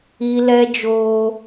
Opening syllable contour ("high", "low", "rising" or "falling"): high